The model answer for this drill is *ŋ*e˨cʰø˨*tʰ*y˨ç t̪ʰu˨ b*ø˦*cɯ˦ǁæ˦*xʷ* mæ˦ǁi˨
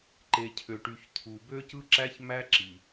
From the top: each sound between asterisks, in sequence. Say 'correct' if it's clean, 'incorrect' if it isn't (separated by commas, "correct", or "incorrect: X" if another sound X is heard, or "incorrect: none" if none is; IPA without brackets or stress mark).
incorrect: ǃ, incorrect: ʈ, correct, incorrect: ç